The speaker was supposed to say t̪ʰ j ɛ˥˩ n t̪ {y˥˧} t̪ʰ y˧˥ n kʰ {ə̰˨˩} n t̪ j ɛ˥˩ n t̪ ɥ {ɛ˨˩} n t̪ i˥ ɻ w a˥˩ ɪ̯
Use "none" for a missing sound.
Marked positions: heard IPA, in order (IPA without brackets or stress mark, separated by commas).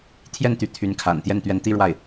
y˧˥, a̰˨˩, ɛ˧˥